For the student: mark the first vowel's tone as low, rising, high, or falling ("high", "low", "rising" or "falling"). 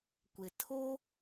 low